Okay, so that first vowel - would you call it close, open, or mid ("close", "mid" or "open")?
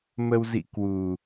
mid